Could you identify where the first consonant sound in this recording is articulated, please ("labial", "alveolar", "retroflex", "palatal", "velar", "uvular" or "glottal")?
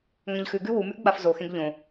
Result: velar